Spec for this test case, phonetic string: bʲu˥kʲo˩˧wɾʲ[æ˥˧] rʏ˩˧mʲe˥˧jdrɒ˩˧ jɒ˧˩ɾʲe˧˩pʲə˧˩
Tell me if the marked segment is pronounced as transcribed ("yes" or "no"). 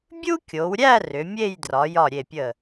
yes